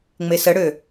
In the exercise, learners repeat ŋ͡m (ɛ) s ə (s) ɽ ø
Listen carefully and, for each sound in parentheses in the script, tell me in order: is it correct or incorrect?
incorrect: e, incorrect: none

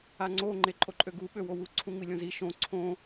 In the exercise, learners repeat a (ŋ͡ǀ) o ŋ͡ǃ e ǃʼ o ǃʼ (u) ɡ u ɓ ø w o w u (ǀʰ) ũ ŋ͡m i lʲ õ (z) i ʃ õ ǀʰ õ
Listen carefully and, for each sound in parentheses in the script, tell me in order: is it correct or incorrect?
correct, incorrect: ø, correct, correct

